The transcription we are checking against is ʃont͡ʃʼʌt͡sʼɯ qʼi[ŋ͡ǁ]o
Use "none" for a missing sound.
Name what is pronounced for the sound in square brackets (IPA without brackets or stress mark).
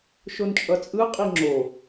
ŋ͡ǁ